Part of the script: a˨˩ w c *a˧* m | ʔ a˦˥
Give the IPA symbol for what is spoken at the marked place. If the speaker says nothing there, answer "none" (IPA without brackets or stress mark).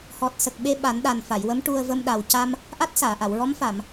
a˧